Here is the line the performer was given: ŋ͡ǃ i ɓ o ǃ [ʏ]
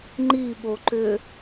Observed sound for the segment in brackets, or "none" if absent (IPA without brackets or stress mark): ʏ